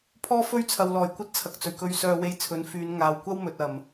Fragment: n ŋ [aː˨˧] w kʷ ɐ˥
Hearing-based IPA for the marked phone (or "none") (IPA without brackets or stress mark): aː˨